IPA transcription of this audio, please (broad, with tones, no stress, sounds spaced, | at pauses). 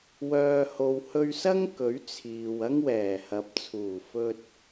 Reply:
w œː˨ h o˨ w h ɵ˧ ɥ s ɐ˥ ŋ k ɵ˨˥ ɥ t͡sʰ iː˨ w ɐ˥ ŋ w ɛː˨˩ h ɐ˨˥ p̚ t͡sʰ uː˨˩ f ɵ˧ t̚